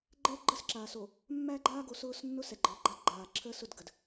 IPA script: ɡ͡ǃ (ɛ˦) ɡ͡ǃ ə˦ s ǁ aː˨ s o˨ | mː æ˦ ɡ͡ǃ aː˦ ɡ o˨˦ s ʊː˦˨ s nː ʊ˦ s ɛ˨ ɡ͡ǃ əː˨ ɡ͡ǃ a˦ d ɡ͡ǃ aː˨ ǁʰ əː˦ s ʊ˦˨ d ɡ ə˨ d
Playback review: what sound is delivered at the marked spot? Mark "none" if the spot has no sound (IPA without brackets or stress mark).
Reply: ɛ˦